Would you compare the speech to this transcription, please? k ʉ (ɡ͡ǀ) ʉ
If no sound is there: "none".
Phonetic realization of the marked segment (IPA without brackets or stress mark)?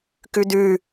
d